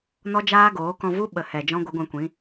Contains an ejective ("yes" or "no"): no